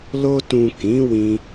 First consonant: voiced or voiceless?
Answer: voiced